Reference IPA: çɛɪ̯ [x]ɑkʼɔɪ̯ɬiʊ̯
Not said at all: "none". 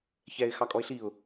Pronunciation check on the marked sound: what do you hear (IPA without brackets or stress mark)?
x